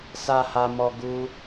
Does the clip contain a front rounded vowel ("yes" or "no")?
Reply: no